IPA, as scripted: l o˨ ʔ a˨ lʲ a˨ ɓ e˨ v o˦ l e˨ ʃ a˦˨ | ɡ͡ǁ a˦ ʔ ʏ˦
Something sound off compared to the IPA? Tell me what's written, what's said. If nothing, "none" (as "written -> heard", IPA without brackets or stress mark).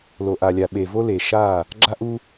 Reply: ʏ˦ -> u˦